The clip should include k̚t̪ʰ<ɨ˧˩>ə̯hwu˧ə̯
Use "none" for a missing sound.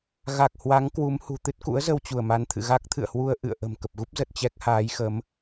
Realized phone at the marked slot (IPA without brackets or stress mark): ɨ̰˧˨